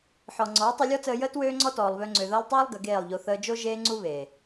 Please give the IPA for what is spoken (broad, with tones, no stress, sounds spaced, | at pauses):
ħ ɔ˨ ŋ͡ǀ ɔː˨˦ tˤ u˧ lʲ ɔ˦ t͡s əː˧ j əː˦ t w øː˦ ŋ͡ǀ ɔ˦ t ɔː˨ lˠ β ø˧ ŋ͡ǀ ø˨ ð əː˧ lˠ tˤ øː˦ lˠ ɡ ə˨˦ ɡ eː˦˨ lˠ ʎ o˧ θ əː˧ d͡ʒ o˦ ʒ eː˦ ŋ͡ǀ u˦ β eː˨